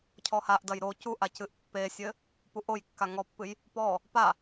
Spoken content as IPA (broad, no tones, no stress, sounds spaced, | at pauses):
cʰ ɔ h a ʔ d ɐ j ɾ o c u ʔ a c ɨ ʔ pː e sʲ ɘ | p u ʔ o j kː a ŋ ɔ pː ɨ j | p ɔ | p a